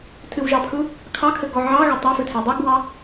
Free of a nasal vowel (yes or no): yes